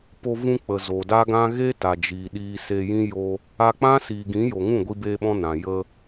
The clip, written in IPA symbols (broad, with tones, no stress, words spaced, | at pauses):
po˧vũ˧k͡pə˨ zo˨da˦ɡã˦ ɣe˦ta˨d͡ʒiː˨ ɗiː˧se˧jĩ˦ jo˧ | a˧k͡pã˦siː˨ɡĩ˨˦ jo˨ŋũ˦˨ ɡʷi˧beː˧ɓɔ̃˧ nã˨ jə˧